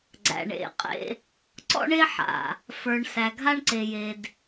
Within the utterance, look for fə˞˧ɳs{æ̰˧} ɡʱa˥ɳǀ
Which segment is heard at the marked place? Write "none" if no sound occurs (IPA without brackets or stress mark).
æ˧